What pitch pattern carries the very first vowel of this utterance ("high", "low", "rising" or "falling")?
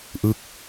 falling